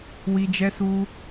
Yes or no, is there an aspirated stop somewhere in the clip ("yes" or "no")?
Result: no